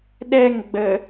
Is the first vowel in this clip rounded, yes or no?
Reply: no